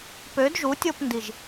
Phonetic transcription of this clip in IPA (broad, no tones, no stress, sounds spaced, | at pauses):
p ø d ʒ u tʲ o p n d i ʒ